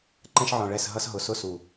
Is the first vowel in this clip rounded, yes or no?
no